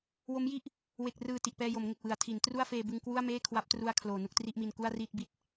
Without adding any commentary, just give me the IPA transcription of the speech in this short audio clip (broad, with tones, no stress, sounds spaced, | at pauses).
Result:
w o˦˥ m j i˥˩ ʔ | w e˨˩ k̚ r ɯː˨˩ t i˨˩ ʔ p ɛː˧ j o˩˦ m ŋ e˨˩ k̚ w ɯ˩˦ a̯ tʰ i˩˦ n t r u˥˩ a̯ f eː˧ b ɯ˧ ŋ k w u˥˩ a̯ m eː˥˩ kʰ w a˦˥ p̚ t r u˧ a̯ kʰ l oː˨˩ n u˥˩ k̚ t r i˥˩ ʔ m i˧ n k u˥˩ a̯ r iː˥˩ t̚ b i˨˩ t̚